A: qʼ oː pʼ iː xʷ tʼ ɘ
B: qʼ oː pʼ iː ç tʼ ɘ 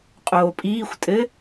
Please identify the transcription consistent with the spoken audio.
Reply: A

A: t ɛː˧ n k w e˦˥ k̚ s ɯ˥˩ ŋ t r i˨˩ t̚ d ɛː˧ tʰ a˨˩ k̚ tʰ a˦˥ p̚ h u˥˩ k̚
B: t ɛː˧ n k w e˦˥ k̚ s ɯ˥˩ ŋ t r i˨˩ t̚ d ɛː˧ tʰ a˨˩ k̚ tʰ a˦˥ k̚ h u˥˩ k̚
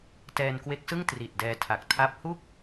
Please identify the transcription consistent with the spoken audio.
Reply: A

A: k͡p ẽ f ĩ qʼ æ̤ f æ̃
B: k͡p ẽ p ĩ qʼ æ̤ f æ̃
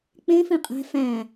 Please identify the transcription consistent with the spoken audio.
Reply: A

